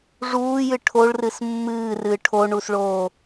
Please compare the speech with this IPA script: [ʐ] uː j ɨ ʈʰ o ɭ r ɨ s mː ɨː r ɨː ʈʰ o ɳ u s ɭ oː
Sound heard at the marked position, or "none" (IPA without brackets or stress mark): ʐ